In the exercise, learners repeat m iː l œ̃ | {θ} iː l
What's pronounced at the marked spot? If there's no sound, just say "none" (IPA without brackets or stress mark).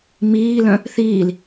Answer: θ